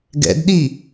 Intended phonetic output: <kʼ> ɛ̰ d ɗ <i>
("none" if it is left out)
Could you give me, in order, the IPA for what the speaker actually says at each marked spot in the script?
ɡ, i

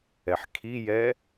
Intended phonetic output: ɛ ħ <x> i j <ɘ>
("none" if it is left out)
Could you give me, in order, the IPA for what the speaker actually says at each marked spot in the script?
kʰ, ɛ

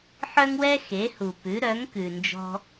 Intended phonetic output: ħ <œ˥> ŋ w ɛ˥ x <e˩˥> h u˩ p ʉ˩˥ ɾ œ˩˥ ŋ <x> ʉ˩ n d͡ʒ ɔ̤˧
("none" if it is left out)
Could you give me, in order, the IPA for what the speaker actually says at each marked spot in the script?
œ˥, e˩˥, k

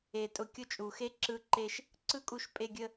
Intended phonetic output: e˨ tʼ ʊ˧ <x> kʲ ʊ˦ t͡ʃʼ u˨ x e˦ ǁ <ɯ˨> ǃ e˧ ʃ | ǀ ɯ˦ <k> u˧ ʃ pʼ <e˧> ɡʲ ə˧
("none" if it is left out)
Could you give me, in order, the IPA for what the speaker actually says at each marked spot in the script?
none, ɯ˧, kʼ, e˧

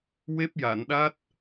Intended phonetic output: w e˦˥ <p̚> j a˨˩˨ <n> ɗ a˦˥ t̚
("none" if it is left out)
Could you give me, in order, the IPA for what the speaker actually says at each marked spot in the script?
p̚, n

